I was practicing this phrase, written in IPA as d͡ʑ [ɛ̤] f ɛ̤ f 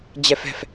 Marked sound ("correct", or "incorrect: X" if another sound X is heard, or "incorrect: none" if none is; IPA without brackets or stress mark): incorrect: ɛ